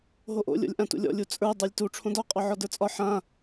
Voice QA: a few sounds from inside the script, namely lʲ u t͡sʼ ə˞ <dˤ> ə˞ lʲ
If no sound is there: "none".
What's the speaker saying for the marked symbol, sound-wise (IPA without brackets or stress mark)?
dˤ